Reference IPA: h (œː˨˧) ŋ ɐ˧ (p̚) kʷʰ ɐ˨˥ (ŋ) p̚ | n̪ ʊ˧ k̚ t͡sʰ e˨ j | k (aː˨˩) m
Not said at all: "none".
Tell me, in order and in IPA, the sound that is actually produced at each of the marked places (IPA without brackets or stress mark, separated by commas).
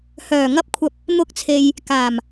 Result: œː˨˩, p̚, none, aː˨˩